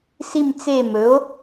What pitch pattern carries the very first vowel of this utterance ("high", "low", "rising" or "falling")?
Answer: falling